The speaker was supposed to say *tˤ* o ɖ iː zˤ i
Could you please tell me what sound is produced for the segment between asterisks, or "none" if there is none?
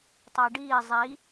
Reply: tˤ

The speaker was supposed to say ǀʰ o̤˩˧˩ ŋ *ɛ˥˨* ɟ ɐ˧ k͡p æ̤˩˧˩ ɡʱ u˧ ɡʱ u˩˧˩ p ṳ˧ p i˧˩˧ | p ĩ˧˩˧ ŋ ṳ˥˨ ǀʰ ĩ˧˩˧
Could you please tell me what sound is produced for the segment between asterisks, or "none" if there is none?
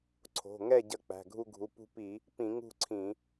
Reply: ɛ˥˨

